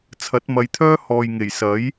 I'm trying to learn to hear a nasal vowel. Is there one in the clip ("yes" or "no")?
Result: no